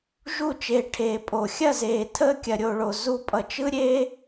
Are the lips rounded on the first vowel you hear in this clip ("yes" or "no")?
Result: yes